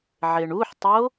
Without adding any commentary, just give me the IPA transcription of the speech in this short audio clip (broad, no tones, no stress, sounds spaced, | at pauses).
ʕ e ɳ u ħ tˤ o